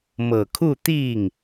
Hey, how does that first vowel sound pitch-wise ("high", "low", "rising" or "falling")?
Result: low